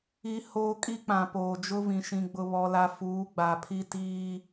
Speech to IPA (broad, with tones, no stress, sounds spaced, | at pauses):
i˦ h oː˦ kʼ i˦ k͡p ã˨ p oː˨ d͡ʒ ʊ˦ v ĩ˨ ʃ ĩ˨ ɡ͡b ʊ˨ β ɔ˨ l a˨ f uː˨˦ ɡ͡b a˨ pʰ i˦ t iː˦